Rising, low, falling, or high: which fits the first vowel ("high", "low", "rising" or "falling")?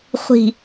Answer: low